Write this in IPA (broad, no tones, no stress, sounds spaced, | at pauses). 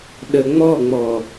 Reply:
ɗ ə ŋ͡m ɔ ŋ͡m ɔ